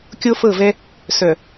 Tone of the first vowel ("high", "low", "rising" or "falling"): high